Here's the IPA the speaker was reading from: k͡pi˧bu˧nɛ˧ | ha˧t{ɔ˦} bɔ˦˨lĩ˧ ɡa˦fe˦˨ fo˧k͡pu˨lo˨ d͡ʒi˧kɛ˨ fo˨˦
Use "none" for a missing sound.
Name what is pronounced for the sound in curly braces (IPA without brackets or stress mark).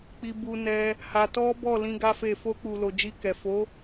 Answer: ɔ˦